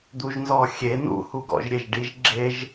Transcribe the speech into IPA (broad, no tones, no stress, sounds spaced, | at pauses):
d̪ u ʒ n z ɔ xʲ e n ṵ h u ɡ ɔ̰ ʒ ɾʲ e ʒ ɖ i ʒ ɡ͡ǁ e ʒ